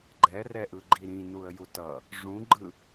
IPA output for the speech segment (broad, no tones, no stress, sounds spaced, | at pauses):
ɡ͡ǃ ɛ r ɛ ʔ ɯ ɡ͡ǃ i ɾ ĩ n u ə̯ j u t ʌ | ʐ ũ ɡ͡ǃ ɯ